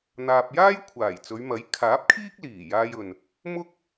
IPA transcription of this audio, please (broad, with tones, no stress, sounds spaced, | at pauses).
n̪ aː˨ p̚ j aː˥ j kʷʰ aː˨˩ j t͡s ɵ˨˧ ɥ m ɐ˨˥ j kʰ aː˨˥ p̚ kʰ iː˥ k̚ l iː˨˩ j aː˥ j ɵ˧ n | m ʊ˥ k̚